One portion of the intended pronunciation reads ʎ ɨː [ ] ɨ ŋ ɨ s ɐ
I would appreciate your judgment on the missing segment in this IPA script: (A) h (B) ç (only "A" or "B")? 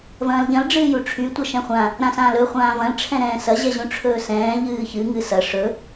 B